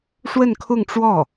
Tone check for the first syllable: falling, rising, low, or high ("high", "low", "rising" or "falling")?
falling